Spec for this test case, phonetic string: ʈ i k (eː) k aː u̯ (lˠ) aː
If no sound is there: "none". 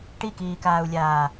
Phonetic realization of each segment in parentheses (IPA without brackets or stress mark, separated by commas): iː, lʲ